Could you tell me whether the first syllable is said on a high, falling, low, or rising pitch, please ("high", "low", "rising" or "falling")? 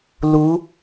rising